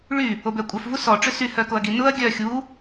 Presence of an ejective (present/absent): present